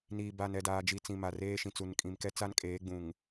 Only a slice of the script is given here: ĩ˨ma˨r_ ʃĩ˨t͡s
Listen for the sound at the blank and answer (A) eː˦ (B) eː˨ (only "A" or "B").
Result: A